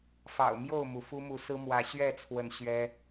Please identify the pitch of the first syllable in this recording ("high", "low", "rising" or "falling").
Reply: low